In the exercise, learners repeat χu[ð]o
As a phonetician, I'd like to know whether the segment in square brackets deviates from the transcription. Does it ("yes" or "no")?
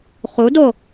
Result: yes